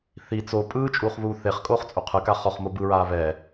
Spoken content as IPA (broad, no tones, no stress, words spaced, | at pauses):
θi t͡so pʼɯːt͡ʃʼuːχβuː θeχkʼoːχt͡sʼu qʰɯka χɔχmo bɯɹaː βɛː